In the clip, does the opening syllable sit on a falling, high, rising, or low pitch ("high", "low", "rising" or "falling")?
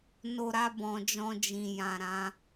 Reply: low